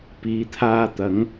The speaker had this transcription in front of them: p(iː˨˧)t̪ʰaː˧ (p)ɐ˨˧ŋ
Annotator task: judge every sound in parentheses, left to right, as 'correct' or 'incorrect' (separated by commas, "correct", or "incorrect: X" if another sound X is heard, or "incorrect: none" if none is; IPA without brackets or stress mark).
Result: correct, incorrect: t̪